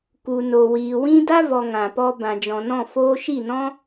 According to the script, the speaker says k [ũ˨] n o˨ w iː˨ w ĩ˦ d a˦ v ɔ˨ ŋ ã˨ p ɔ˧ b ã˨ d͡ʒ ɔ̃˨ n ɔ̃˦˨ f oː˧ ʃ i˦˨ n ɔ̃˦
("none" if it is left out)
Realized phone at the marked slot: u˨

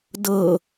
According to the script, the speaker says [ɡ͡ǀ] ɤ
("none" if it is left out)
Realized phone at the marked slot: d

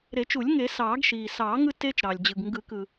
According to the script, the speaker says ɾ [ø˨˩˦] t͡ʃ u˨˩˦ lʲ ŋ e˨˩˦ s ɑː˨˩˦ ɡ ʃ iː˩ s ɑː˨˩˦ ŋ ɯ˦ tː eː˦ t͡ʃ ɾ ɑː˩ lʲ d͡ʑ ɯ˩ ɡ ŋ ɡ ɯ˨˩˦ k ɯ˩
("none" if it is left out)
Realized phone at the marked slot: e˨˩˦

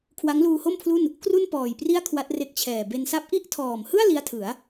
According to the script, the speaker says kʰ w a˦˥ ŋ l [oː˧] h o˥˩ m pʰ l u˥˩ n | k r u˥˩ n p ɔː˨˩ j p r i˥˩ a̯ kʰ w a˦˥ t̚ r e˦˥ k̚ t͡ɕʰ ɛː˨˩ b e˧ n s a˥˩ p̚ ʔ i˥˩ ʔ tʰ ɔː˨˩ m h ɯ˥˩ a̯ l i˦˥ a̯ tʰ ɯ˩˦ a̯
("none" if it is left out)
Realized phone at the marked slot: uː˧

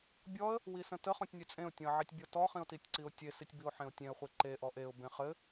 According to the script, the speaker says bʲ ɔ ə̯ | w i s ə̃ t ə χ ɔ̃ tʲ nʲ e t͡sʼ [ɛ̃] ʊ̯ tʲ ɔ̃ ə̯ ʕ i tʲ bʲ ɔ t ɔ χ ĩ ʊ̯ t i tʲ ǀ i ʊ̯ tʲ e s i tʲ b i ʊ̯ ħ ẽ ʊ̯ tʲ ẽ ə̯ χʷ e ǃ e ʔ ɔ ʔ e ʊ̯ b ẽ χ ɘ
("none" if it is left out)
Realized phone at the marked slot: ẽ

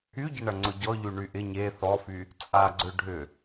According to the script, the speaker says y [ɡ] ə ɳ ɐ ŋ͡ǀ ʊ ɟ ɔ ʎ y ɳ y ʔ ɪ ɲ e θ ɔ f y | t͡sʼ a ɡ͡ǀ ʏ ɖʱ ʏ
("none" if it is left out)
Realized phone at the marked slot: ɟ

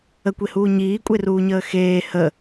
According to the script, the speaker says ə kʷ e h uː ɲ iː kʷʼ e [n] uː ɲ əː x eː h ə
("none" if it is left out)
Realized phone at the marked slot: r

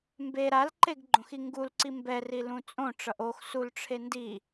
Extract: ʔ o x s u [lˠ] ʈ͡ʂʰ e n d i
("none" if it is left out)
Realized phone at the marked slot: l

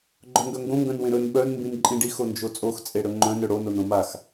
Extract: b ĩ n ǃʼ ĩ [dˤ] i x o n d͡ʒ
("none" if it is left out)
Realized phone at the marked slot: ɖ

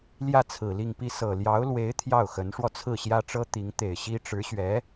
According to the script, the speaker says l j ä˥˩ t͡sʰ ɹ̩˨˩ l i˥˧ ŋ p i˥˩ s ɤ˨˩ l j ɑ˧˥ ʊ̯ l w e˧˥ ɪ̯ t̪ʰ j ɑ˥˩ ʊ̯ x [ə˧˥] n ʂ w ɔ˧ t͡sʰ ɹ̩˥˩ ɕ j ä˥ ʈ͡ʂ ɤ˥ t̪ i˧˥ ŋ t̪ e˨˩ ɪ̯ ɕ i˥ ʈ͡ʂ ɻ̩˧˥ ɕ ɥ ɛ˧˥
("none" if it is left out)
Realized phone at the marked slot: ə˧˥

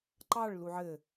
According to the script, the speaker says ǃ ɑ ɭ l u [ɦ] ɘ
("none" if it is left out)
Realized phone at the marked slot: ʕ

